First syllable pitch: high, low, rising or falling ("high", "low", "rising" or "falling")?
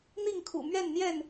falling